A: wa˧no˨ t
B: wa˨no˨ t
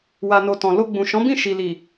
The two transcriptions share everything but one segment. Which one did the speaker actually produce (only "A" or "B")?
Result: B